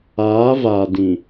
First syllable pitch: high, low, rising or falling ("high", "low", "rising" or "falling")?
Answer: rising